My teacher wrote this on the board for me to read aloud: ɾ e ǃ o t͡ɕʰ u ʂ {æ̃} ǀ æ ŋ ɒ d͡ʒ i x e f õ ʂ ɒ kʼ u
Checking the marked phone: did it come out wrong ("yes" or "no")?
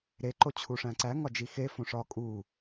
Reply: no